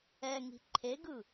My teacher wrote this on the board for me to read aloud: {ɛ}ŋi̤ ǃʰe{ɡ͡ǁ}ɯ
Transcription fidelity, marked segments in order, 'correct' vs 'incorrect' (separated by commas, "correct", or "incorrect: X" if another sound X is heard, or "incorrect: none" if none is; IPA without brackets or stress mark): correct, incorrect: ɡ